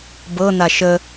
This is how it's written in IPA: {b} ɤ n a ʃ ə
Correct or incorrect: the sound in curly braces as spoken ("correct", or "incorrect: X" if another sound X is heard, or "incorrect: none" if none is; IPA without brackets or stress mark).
correct